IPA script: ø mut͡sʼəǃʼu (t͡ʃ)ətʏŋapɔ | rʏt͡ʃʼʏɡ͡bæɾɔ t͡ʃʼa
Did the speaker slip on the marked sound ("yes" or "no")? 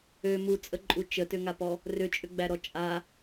no